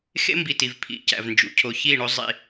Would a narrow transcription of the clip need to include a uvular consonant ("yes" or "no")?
no